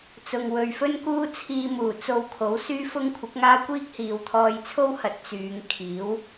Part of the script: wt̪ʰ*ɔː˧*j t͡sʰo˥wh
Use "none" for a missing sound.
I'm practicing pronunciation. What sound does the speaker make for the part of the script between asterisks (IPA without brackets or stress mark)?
ɔː˧